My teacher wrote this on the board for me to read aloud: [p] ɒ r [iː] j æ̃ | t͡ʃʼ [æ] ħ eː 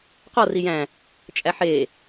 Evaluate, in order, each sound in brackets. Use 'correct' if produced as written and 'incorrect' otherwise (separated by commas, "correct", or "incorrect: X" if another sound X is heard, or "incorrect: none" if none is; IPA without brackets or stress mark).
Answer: incorrect: q, incorrect: i, correct